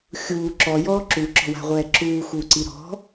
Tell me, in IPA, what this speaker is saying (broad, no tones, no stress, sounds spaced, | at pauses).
xʲ uː ǁ ɔ j ɔː ǁ u ǁ ɔ̤ w a̤ ʁʷ ɛː ǁ uː x uː ǀ i ɾ ɔ̤